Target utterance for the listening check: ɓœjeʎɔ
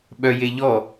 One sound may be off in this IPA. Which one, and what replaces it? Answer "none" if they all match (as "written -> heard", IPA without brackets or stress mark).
none